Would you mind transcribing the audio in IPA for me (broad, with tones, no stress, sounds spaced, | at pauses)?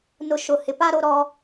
n ʊ˨ ʃ ʊ˨ h ɪ˨ p a˦ ɾ o˦ ɾ ɔ˦